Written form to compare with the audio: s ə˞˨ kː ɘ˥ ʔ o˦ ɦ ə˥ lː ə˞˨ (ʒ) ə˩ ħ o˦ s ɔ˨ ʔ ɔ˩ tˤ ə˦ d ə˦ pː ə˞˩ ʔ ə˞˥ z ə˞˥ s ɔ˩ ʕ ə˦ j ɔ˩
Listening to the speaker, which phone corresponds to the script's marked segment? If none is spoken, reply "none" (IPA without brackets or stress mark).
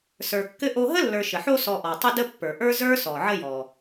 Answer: ʃ